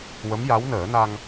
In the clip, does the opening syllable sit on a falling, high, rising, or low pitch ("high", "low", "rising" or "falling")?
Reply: rising